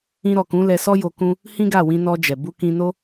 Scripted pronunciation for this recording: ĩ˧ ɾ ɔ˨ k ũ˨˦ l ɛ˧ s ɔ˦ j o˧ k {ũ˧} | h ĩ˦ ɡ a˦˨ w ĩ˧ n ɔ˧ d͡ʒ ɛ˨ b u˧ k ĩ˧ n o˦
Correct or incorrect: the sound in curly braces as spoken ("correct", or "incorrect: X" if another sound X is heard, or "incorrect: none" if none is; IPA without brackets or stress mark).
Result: incorrect: ũ˦